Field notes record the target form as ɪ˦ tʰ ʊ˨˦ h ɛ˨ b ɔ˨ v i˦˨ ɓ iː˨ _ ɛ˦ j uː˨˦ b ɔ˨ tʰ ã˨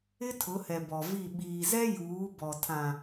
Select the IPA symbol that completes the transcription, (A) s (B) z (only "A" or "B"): B